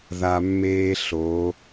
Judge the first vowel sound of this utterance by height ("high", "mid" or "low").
low